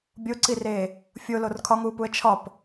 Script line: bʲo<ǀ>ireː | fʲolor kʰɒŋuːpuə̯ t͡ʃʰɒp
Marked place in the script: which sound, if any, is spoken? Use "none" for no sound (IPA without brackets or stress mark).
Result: ǀ